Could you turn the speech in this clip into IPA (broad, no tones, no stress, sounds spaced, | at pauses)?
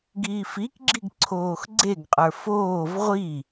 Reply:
ɡ iː f i k ɡ͡ǁ i ɡ ǀʰ oː x ɡ͡ǀ e ɡ qʼ ə˞ f oː v ʁʷ i